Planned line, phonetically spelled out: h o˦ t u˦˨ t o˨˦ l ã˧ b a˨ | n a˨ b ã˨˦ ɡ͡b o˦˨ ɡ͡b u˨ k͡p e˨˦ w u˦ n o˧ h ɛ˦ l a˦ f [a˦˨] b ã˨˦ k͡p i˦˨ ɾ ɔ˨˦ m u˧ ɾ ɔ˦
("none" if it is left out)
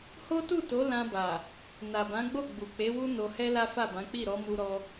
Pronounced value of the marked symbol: a˦˨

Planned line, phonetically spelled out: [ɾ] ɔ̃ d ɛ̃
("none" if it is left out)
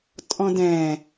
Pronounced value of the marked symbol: tʼ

